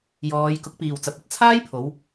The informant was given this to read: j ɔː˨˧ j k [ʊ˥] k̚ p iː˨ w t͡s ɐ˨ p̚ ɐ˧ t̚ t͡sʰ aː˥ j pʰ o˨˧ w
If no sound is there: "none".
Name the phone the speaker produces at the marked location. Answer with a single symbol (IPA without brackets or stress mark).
ʊ˨˥